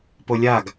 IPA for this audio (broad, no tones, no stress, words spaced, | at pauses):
polʲaɡ